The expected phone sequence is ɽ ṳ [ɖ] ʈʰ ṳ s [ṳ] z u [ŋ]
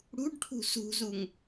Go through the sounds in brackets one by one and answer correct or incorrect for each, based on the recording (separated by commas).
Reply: correct, correct, correct